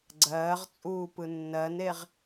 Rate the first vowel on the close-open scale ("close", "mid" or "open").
mid